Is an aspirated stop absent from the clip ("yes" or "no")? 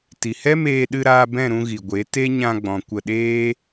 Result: yes